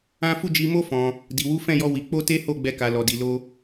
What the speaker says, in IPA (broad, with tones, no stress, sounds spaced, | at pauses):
ã˦ f u˦˨ d͡ʒ i˧ m o˦ f ɔ̃˧ | d i˨ w u˨˦ f ɛ̃˦˨ j ɔ˧ w i˧ k͡p o˦ t e˦ h o˦˨ ɡ͡b ɛ˧ k a˨ l ɔ˨ d i˨ l o˧